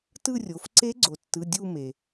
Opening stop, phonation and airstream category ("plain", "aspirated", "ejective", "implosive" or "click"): plain